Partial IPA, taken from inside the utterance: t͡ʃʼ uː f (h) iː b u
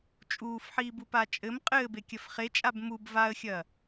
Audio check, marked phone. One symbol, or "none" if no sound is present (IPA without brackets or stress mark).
ħ